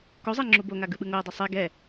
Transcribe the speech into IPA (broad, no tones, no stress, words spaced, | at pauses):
kozˤɛ ŋ͡ǁuboŋa ɡɯɓɯŋoə̯dˤʌ sˤe ɡɛ